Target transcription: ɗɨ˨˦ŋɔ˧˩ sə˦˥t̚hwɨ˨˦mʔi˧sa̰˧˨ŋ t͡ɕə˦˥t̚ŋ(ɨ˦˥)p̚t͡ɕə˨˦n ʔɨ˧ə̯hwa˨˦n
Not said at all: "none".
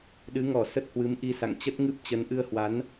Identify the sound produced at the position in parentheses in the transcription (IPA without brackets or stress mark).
ɨ˦˥